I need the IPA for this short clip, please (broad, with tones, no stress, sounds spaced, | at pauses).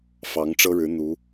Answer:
f ɑ˧˥ ŋ ʈ͡ʂ ɤ˥ ɻ ɻ̩˧˥ n̪ u˧˥